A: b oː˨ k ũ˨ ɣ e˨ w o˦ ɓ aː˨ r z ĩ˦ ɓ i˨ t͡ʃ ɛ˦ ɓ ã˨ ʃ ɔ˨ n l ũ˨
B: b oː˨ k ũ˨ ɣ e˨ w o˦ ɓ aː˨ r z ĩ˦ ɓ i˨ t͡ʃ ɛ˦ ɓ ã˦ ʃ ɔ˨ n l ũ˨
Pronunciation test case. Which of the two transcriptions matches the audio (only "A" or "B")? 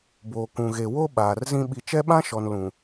B